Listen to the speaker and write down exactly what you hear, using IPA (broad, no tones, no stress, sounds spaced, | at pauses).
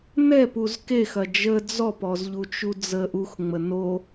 n ɛ p u z k e x ɐ d͡ʒ ə d͡z ɔ p ɔ z ʎ u t͡ʃ u d͡z ə ʔ u x ŋ͡m ə n o